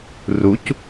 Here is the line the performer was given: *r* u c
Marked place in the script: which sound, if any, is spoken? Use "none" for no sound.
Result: r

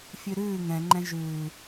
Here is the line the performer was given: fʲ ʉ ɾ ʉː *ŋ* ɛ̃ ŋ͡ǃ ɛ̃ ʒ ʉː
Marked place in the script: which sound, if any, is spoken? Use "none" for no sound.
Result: ŋ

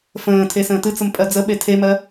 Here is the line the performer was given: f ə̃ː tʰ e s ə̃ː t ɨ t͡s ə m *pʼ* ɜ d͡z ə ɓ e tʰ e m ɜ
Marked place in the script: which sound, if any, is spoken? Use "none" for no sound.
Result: pʼ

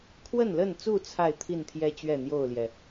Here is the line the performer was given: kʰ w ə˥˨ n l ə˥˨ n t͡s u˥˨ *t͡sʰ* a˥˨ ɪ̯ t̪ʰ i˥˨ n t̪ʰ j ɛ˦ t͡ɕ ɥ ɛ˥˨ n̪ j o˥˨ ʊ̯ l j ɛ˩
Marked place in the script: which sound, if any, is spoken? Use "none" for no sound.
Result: t͡sʰ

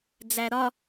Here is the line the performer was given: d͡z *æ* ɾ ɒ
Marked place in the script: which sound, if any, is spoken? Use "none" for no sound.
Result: æ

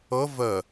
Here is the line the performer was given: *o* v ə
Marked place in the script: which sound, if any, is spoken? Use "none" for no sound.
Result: ɤ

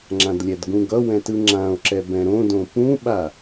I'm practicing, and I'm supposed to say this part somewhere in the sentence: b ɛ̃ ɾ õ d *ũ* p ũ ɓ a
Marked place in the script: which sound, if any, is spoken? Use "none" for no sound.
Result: õ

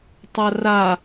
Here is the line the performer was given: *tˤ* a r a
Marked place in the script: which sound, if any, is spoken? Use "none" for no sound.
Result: tˤ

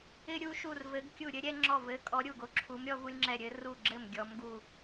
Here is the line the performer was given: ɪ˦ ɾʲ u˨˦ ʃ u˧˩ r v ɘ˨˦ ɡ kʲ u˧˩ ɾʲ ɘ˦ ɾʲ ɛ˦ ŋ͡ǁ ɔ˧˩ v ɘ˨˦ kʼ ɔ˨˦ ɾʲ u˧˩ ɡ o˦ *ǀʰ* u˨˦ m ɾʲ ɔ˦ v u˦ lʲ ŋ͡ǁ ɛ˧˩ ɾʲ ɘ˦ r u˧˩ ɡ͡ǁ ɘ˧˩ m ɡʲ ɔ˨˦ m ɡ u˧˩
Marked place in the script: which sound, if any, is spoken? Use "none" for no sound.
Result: ǁʰ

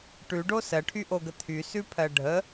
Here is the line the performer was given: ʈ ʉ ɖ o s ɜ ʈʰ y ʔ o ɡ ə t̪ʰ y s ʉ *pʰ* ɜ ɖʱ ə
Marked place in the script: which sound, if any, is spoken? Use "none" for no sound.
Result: pʰ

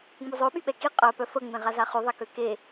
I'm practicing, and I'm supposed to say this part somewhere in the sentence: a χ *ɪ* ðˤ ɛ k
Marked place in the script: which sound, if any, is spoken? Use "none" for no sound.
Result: y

